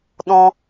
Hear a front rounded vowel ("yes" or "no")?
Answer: no